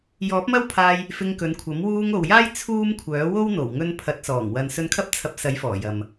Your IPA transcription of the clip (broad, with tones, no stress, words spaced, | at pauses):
jɔː˨˥p̚mɐ˥wpʰaː˧j | fɪ˧ŋkɵ˨˧nkʷʰɐ˨˥m wuː˧ŋo˨wjaː˥j t͡sʰuː˥mkʷʰœː˨˥ wo˥wn̪o˨˩wŋɵ˧n pʰɐ˨˥t̚sɔː˨˩ŋ wɐ˨nsɵ˧nkʰɐ˥p̚ t͡sʰɐ˧p̚sɐ˨˥j fɔː˨˩jɐ˨m